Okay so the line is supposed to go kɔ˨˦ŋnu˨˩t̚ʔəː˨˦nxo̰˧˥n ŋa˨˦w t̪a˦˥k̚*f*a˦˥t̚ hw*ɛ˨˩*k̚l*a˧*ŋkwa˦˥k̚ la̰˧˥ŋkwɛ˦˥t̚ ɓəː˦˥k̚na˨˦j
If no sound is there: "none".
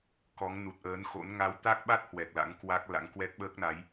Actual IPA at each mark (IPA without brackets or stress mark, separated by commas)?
ɓ, ɛ˨˩, a̰˧˥